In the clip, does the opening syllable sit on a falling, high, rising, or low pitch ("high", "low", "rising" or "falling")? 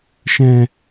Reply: low